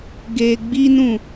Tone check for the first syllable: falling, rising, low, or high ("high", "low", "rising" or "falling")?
low